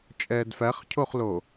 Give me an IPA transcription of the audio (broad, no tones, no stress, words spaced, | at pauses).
t͡ʃʼɛːdfæχcʰoχlo